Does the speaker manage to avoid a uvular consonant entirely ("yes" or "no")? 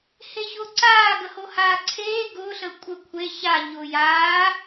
yes